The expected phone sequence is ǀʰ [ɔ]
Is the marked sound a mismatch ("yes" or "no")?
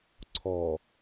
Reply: no